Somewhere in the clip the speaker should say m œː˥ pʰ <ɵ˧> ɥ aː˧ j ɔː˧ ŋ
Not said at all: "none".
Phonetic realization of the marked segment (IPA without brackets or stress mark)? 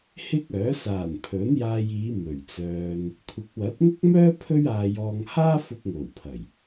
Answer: ɵ˥